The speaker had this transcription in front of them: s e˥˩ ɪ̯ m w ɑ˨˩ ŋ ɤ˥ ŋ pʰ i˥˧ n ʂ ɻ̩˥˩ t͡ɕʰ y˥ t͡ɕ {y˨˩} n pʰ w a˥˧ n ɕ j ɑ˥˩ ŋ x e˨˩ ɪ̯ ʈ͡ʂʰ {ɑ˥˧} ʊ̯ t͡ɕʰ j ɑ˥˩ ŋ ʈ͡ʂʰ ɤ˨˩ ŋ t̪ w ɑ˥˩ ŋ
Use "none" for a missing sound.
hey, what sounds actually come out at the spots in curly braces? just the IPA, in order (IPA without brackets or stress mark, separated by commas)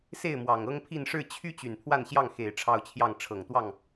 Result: y˨˩, ɑ˥˧